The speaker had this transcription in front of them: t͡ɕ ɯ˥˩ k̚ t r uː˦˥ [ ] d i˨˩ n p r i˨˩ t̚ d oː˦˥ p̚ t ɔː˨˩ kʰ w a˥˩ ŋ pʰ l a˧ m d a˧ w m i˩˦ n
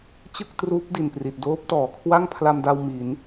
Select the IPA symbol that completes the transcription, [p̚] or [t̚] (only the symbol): p̚